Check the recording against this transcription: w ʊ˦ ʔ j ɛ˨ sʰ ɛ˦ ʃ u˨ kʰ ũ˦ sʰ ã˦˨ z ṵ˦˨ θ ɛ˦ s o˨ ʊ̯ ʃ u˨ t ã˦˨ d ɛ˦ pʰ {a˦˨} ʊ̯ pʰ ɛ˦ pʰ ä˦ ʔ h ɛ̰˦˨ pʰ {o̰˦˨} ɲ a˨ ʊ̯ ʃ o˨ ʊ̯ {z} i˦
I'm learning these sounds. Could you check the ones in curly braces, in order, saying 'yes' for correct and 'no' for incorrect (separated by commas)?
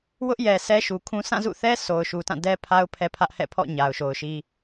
no, no, no